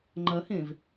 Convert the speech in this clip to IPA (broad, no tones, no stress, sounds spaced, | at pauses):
ŋ͡ǃ ɐ h ẽ v